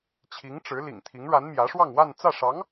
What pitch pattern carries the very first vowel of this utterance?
rising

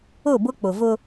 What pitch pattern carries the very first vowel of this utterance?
falling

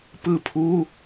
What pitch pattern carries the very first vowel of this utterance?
falling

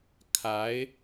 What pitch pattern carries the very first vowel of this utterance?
rising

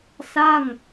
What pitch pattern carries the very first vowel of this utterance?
falling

